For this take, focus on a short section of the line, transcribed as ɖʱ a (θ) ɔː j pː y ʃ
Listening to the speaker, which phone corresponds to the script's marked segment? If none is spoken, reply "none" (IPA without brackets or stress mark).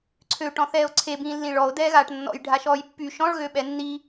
ʃ